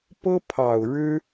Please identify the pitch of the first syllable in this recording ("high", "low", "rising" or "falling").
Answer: high